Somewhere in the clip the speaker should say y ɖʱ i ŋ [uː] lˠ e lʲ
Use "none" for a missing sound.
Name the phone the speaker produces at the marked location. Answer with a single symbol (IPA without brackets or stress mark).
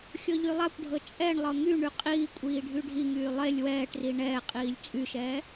yː